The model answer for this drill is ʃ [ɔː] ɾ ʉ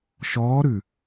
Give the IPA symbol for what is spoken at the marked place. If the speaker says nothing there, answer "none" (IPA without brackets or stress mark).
ɔː